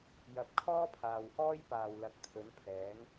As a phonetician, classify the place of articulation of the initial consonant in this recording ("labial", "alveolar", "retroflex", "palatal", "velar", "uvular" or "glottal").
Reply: palatal